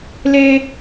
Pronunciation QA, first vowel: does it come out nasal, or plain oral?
oral